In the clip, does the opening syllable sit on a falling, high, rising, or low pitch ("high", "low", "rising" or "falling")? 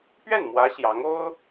falling